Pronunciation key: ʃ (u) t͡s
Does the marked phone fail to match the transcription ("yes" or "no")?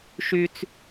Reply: yes